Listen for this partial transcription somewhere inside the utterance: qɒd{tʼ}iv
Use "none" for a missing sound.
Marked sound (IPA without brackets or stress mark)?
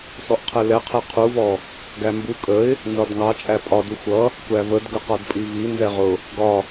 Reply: pʼ